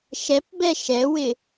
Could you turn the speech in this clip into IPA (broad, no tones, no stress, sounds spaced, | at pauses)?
ʃ ɛ p b ɛ ʃ ɛ w ɪ